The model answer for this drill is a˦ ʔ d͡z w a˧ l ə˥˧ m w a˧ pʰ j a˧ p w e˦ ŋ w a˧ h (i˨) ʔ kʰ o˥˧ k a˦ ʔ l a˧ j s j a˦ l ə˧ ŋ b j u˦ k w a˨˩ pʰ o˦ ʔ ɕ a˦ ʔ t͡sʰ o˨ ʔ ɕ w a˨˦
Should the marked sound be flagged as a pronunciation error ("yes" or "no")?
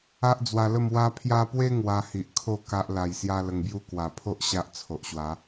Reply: no